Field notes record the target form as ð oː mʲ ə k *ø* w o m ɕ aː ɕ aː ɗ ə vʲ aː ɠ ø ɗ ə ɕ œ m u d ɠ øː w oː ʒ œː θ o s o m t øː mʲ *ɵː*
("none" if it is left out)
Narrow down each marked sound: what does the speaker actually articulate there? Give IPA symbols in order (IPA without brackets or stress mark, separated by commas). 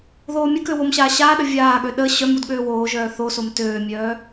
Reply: ø, œː